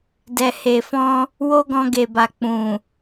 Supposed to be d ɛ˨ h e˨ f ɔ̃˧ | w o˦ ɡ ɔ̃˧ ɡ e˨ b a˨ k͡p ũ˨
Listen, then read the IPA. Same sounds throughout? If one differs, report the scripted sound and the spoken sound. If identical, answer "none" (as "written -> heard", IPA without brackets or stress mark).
none